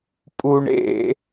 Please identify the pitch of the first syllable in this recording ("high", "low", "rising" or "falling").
low